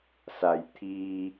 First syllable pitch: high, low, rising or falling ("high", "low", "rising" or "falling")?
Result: low